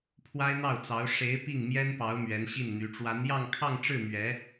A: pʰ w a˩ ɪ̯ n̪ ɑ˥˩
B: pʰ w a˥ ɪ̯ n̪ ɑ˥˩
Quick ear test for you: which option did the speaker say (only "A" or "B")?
B